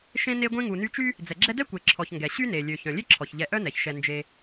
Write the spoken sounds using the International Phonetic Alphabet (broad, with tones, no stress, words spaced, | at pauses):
ʃẽ˦ne˦ɡʷẽ˦ ŋu˨ny˦t͡ʃy˥ | d͡zɛ˩ɡ͡ǁɛ˦dɛ˥ kʷe˨ǁʰɔ˨çŋɡɛ˩ ɕy˥ne˩ lʲø˩ çœ̃˩lʲe˥ ǁʰɔ˩çʎɛ˨ ʔœ˥nɛ˩çʃɛ˨ nd͡ʒe˨